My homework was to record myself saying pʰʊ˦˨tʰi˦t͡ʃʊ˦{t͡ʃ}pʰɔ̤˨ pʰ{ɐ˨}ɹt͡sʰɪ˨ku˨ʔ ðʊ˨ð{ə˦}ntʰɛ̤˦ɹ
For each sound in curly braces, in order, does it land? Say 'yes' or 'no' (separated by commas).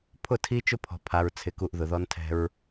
no, no, no